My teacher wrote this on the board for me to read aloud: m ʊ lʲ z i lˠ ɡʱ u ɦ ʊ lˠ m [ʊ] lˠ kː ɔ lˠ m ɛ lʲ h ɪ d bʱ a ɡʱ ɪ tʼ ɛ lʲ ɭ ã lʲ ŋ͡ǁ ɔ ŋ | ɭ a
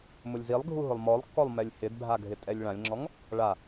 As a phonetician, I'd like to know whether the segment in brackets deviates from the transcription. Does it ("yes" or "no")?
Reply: yes